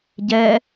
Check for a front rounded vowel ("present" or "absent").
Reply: absent